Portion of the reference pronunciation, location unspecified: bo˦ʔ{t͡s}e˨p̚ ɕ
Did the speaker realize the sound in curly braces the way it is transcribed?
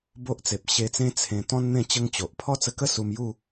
yes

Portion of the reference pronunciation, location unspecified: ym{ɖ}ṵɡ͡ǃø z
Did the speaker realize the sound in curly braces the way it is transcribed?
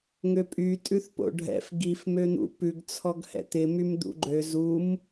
no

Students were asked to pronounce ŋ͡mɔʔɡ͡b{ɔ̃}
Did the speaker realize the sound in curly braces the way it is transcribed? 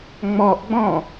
yes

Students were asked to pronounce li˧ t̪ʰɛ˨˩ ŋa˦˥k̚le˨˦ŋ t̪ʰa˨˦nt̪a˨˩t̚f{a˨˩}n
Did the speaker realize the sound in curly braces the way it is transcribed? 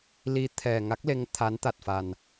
yes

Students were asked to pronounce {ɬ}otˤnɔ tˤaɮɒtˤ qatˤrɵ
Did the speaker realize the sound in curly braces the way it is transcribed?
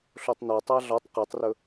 yes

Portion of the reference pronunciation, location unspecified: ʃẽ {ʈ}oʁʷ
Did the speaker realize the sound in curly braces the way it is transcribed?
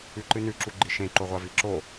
no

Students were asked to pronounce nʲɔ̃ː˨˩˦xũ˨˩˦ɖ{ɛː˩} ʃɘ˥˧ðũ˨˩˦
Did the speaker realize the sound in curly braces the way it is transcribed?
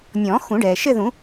yes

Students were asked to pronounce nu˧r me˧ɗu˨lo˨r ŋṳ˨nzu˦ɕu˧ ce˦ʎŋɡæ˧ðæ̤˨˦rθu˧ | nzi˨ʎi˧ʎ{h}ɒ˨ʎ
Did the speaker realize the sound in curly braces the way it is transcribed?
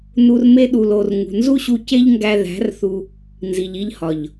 yes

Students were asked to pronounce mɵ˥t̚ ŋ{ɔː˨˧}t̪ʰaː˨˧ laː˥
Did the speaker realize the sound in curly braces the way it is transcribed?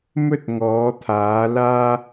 yes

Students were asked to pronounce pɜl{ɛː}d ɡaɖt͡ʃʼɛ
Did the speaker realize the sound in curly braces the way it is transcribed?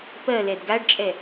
no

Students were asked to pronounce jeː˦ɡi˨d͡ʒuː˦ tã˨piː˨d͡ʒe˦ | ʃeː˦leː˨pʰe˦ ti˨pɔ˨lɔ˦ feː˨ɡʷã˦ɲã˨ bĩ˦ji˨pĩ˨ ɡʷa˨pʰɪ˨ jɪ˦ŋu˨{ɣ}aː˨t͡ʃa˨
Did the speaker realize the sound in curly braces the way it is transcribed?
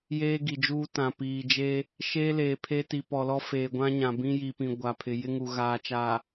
yes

